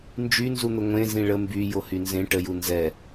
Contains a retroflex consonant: yes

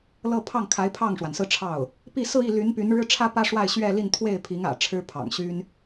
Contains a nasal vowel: no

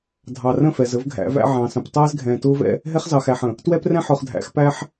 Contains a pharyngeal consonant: yes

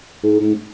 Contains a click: no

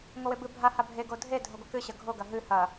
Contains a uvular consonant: no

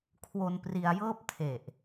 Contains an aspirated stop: yes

